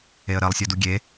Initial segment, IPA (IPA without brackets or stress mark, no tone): e